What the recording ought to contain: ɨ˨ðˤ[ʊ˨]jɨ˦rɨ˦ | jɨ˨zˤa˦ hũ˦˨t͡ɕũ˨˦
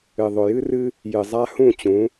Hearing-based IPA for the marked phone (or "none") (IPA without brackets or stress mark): ʊ˨